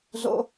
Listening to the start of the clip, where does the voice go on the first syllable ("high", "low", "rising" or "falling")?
high